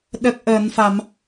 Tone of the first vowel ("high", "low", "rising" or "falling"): low